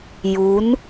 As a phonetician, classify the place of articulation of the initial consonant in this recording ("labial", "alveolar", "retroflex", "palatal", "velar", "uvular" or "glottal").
palatal